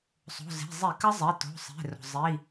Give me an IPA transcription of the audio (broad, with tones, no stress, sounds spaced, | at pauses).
sˤ o̤˩˧˩ z e̤˩˧˩ zˤ i˧˩˧ k ə˦˥ zˤ e˩˧˩ t o̤˩˧˩ sˤ e̤˩˧˩ r o̤˩ zˤ i˩˧˩